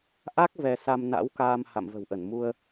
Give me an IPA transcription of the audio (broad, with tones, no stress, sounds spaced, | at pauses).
ʔ a˦˥ k̚ v ɛ˧ s a˧ m n a̰˧˥ w k aː˧ m h a̰˧˨ m v ə̤˨˩ w ʔ ə˧˩ n m u˧ ə̯